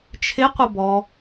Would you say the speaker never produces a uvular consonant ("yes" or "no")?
no